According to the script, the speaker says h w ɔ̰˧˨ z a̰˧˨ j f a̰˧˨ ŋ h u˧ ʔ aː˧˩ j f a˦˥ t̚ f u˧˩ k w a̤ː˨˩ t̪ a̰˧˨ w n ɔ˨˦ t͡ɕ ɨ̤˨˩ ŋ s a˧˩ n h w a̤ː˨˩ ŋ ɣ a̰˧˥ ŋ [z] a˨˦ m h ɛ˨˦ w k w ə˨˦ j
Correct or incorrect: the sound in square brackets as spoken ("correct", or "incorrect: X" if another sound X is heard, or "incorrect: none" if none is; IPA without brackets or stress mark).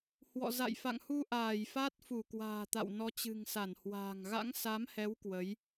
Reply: incorrect: s